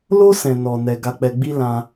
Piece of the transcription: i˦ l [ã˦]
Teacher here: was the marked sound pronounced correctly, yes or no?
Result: yes